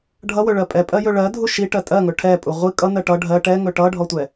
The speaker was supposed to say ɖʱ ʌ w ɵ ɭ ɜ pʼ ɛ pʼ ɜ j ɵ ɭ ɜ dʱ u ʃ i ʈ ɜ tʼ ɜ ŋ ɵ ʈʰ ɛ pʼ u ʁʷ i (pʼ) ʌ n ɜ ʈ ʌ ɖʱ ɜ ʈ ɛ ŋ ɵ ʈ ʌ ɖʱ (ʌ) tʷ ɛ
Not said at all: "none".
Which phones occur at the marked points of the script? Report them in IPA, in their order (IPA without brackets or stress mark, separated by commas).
kʼ, ɔ